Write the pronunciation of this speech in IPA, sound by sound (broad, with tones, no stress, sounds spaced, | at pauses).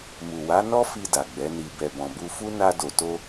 m u˨ w a˨˦ n ɔ˦ f i˧ d a˨ ɡ͡b ɛ˨˦ n i˧ b ɛ˨ b ɔ̃˨ b u˧ f u˦ n a˦ d o˧ t o˦